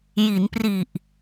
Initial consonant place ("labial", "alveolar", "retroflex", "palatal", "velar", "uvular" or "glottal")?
palatal